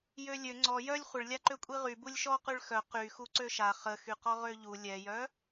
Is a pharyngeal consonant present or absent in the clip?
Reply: absent